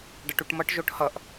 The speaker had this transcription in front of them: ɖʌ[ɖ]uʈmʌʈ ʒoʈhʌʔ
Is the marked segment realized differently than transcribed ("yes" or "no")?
yes